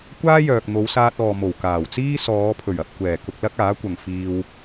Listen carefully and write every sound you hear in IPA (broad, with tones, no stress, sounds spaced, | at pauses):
kʷ aː˥ j œː˨ k̚ n̪ o˨˧ w s aː˧ t̚ ɔː˨ m o˨˩ w k aː˨˩ w t͡s iː˥ s ɔː˨˧ pʰ ɵ˨˩ ɥ ɐ˨ p̚ kʷ ɛː˨˩ k ʊ˧ k̚ l ɐ˥ k̚ aː˨˥ kʷ ɐ˨ ŋ f iː˧ w